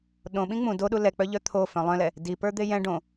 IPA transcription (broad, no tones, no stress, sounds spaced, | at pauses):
ɗ õ ɓ ĩ ŋ͡m ũ d o ɗ u l ɛ k͡p œ ʎ œ t̪ʰ o f œ̃ lˠ œ̃ l ɛ | d i p ə˞ d̪ e j ɛ̃ ɖ õ